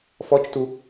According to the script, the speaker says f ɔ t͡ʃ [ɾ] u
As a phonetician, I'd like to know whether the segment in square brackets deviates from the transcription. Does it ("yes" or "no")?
yes